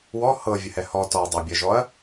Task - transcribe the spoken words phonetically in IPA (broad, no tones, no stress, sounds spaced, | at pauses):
w ɔ h ɤ vʲ ɘ h ɛ h ɔ t ɔ dˤ ɤ bʲ ɜ ʒ ɔ ɐ̯